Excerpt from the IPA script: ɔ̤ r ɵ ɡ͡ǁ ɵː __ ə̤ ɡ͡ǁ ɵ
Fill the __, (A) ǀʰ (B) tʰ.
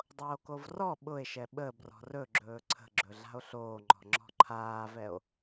A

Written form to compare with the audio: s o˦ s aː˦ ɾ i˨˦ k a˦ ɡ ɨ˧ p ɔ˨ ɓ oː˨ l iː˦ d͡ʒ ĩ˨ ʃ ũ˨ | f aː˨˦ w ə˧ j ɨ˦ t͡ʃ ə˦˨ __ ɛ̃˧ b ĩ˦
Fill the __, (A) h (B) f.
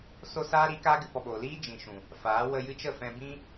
B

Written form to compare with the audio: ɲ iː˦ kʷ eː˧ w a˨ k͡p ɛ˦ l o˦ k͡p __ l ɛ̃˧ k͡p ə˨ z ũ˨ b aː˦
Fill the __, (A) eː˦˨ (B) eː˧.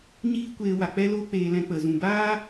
B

